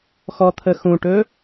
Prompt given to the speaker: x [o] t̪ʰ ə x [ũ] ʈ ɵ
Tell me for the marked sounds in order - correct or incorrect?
incorrect: ɔ, correct

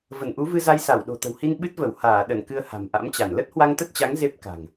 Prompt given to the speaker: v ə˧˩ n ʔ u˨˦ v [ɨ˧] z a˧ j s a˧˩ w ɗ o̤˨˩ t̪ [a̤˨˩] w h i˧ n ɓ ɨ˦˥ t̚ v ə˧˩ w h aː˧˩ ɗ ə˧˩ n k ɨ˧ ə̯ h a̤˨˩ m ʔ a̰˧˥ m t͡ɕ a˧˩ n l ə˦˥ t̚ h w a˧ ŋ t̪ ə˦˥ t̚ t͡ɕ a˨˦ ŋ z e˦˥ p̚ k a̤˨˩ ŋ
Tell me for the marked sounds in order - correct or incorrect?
correct, incorrect: ə̤˨˩

